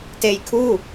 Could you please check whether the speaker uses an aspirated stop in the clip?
yes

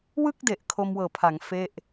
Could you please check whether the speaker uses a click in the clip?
no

